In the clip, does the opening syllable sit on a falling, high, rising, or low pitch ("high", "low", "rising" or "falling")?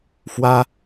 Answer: high